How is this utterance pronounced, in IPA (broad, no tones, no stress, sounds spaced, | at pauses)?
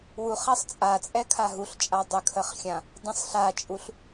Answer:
w u χ a sˤ t͡sʼ a t͡sʼ ɛ kʰ a ɦ u ɬ t͡ʃʼ a dˤ ə kʰ ə χ xʲ ã | dˤ ə̃ sˤ ɬ a t͡ʃʼ u ɬ